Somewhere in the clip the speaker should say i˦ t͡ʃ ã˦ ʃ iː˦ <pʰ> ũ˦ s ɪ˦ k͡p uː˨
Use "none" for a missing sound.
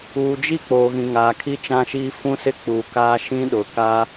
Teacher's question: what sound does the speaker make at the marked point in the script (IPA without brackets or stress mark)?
f